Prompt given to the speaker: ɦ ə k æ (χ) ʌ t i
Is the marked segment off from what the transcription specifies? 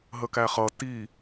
no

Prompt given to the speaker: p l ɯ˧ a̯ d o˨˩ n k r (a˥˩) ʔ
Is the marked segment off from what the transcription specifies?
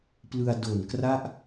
no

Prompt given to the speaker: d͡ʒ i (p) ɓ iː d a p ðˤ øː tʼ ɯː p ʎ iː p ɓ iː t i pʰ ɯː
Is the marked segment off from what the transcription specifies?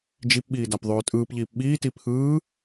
no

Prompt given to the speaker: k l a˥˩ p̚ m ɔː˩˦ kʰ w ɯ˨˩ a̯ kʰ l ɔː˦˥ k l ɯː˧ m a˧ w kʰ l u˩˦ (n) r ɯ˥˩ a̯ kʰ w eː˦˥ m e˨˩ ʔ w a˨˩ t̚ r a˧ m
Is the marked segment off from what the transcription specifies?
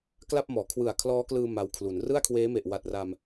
no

